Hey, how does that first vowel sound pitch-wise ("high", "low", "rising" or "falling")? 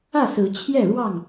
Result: falling